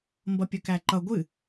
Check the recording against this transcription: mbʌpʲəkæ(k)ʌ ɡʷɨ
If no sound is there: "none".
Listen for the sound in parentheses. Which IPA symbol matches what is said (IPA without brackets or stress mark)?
ǃ